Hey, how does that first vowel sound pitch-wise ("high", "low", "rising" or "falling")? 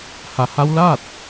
low